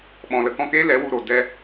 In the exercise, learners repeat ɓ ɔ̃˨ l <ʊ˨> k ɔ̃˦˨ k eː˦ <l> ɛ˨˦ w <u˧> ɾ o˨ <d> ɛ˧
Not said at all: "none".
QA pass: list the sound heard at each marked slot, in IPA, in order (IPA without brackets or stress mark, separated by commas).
ə˨, l, u˧, d